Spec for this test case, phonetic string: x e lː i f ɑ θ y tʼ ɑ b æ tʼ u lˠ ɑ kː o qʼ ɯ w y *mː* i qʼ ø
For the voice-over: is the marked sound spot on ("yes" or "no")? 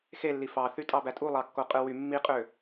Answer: yes